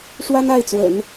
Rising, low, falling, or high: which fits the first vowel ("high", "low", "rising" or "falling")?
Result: high